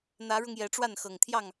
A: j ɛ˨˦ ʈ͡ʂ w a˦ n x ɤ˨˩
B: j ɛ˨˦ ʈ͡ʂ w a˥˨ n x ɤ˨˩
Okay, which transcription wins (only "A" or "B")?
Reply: B